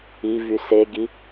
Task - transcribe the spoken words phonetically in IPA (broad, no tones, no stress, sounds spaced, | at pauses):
i v y s e ɡ i